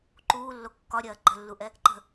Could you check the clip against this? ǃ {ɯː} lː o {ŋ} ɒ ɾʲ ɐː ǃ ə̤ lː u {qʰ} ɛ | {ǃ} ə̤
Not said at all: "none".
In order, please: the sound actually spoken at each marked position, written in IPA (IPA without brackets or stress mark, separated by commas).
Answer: uː, kː, ʔ, ǃ